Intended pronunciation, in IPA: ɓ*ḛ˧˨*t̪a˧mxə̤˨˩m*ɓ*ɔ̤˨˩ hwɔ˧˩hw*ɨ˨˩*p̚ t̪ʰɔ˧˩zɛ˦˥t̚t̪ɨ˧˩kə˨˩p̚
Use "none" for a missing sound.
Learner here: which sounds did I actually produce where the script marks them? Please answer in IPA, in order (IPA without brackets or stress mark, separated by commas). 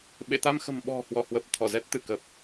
ḛ˧˨, ɓ, ə˨˩